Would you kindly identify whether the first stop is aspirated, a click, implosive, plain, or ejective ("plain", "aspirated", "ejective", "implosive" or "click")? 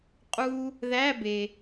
ejective